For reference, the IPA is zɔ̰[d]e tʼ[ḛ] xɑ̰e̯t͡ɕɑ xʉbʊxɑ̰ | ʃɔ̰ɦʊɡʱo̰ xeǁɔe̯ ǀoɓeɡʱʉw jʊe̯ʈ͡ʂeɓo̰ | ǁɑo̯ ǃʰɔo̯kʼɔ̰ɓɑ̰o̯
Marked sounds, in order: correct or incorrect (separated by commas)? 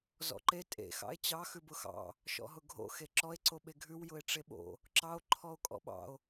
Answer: incorrect, correct